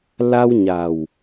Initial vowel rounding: unrounded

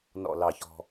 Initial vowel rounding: rounded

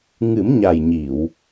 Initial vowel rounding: unrounded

